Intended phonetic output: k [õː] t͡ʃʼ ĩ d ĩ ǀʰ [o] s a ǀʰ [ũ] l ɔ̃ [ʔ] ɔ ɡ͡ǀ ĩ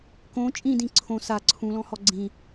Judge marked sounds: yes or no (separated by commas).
no, no, yes, no